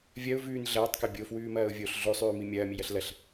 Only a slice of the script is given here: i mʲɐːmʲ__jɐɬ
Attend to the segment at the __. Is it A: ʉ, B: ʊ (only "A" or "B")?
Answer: A